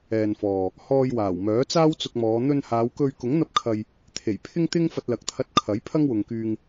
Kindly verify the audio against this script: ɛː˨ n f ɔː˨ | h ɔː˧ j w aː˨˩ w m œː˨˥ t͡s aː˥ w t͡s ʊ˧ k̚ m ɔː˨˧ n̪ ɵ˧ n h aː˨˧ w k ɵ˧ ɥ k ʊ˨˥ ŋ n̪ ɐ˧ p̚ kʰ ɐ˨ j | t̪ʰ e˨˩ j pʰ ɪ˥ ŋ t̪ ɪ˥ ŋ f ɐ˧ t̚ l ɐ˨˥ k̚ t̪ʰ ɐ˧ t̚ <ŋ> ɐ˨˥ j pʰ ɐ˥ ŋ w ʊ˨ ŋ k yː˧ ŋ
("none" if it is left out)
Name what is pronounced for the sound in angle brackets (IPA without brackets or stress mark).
kʰ